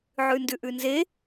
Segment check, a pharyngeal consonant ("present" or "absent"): present